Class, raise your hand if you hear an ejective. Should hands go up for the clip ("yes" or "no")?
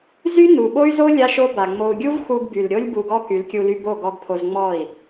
no